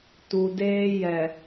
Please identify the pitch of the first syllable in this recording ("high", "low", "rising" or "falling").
low